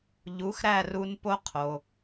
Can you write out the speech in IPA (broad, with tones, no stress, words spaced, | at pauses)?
ʎu˩˥xɾæ˥˩ru˧n po˥qʰo˩